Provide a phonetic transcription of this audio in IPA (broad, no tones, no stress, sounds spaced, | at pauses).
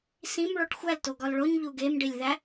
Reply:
s ĩ m ɭ o ʈ xʷ æ l t o ɡ ɒ l ɭ o ɲ ʎ u ɡ e m ɖ i lʲ ð æ